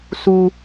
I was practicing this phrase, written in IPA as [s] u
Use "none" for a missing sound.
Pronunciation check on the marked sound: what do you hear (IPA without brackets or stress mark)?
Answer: s